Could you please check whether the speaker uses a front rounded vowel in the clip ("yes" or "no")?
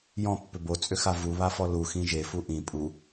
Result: yes